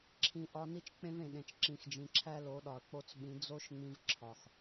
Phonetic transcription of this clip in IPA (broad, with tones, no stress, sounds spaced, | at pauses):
ǁʰ ĩ˧ ʔ ɒ˦ n i˦ t͡ʃ k͡p ẽ˦ v ẽ˨ ɗ ẽ˨ t͡ʃ ǁ ĩ˨ x d͡ʒ ĩ˨ ǁʰ æ˦ l o˨˦ ɗ ɒ˨ ɐ̯ k͡p o˧ t͡s ɓ ĩ˨˦ d͡z o˦ ʃ ŋ͡m ĩ˧ v ǁʰ ɒ˨ x